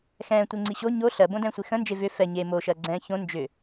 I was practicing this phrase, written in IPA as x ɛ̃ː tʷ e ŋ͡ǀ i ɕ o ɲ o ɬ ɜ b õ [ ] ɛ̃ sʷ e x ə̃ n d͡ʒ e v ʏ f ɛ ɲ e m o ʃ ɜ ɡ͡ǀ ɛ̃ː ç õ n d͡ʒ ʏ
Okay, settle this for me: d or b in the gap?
d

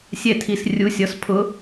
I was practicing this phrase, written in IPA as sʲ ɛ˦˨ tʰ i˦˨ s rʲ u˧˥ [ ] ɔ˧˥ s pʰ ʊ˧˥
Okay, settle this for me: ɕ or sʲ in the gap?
sʲ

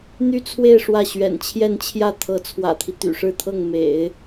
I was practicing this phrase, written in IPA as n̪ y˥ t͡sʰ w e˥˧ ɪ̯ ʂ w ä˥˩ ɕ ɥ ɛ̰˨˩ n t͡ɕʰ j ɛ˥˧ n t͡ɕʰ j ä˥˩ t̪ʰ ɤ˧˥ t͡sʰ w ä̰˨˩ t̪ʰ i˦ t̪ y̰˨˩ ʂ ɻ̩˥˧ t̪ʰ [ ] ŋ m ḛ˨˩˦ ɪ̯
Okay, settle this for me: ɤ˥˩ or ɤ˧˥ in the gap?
ɤ˥˩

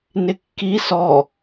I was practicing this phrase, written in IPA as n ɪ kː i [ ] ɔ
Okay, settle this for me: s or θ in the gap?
s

